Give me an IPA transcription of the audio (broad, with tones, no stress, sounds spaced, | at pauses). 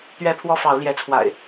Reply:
t̪ ɥ ɛ˦ pʰ w ɔ˦ f ɑ˨˦ ʊ̯ l j ɛ˨˦ t͡sʰ w a̰˨˩ ɪ̯